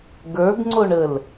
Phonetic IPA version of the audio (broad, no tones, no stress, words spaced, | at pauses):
ɡə˞ɡŋ͡ǀoɳəl